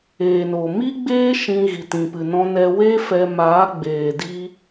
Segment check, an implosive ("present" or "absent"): absent